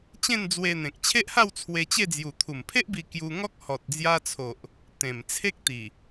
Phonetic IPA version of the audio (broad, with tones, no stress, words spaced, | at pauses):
t͡ɕẽ˥˧nd͡zwe˧n̪ẽ˨k̚ t͡ɕʰe˦ʔha˥˧w t͡sʰwe˧t͡ɕe˥˧d͡zju˨˩ t̪ʰu˨˩mpʰe˦ʔbi˧ kju˧ŋɔ˦k̚ hɔ˨t̚d͡zja˧t͡sʰo˨ʔ | t̪ẽ˨˩mt͡sʰe˦k̚t̪i˨˩